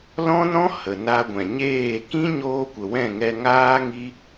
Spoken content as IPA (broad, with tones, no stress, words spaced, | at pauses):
lɔ̃˦nɔ̃˦ hə˨na˧ɡʷɛ̃˨ ɲeː˦˨ kĩ˦ɲoː˧kʷə˨ wɛ̃˦˨ŋɛ˧ŋaː˦ ŋi˦